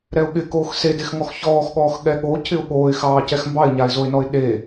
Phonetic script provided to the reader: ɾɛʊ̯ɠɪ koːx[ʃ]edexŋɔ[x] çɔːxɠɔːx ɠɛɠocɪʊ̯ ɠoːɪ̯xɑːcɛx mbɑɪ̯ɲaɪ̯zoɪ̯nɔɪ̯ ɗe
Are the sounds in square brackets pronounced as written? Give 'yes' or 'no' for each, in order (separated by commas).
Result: no, yes